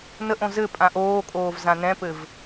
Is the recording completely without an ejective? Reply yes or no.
no